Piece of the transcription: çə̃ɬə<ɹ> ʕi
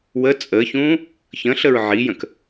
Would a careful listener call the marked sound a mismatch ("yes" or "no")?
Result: no